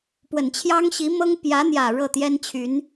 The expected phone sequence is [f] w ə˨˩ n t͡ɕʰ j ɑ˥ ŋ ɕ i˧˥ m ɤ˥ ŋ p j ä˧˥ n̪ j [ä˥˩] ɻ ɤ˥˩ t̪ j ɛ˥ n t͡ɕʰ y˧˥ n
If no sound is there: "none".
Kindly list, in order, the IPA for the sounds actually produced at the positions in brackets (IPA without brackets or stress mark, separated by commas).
p, ä˨˩